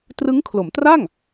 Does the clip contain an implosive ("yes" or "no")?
no